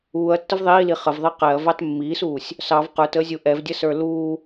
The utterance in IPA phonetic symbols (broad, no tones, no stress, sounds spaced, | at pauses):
uː ɐ̯ tː ə v ðˤ iː l i χ ə v ðˤ i q ɛ ɐ̯ v ɑ t mː iː s uː sʲ | s ɑ v q ə˞ t əː zʲ u ʔ ɛ v dʲ ə s ə˞ l uː